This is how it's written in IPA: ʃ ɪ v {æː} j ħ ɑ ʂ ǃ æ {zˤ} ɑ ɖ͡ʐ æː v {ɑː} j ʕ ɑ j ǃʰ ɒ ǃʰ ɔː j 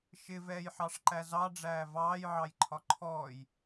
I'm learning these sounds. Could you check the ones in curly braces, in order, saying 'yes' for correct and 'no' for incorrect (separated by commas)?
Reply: no, no, yes